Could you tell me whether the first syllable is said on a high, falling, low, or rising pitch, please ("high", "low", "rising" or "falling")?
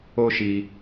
high